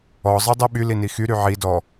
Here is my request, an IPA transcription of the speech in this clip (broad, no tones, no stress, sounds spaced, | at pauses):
ɔ zˤ i dˤ i ɓ y l i n i x y ɾ y ʕ i d ɔ